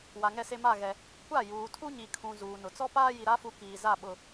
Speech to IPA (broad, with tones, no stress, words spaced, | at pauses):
wa˨ŋɛ˦˨se˦ ma˦˨ɣɛ˨ | kʷa˦˨juː˨tʰu˦ɲi˨ kʰũ˨ zuː˨nʊ˨ t͡sɔ˦paː˦ ji˨ɾa˦fu˨˦ kiː˨za˦˨ ɓʊ˨